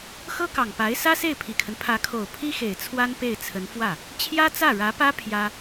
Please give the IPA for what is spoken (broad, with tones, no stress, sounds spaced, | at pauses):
x ɤ˥ k ɑ˨˩ ŋ p a˧˥ ɪ̯ s ä˥ s e˥˩ ɪ̯ pʰ i˨˩ kʰ ə˦ n pʰ ä˧˥ kʰ o˨˩ ʊ̯ pʰ i˥ x e˨˩ ɪ̯ t͡sʰ w a˥ n p e˥˩ ɪ̯ t͡sʰ ə˧˥ n f w ä˥˩ | t͡ɕʰ j ä˥ t͡s ä˥˩ ɻ ä˧˥ p ä˥ pʰ j ä˥